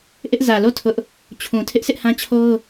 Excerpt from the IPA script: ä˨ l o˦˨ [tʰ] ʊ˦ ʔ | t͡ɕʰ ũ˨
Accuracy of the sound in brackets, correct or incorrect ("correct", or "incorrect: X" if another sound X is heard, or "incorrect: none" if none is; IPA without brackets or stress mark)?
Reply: correct